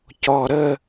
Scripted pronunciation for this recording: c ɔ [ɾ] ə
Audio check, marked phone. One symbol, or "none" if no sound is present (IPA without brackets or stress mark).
ɾ